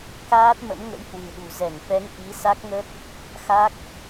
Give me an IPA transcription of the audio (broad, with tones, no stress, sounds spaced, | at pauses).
k aː˦˥ t̚ m ə̰˧˥ m ŋ ə̰˧˥ j h w ɨ̤˨˩ ɗ ṳ˨˩ z ɛ˧˩ ŋ f ɛ˨˦ ŋ ʔ i˨˦ s a˦˥ k̚ ŋ ə˦˥ t̚ | x a˦˥ k̚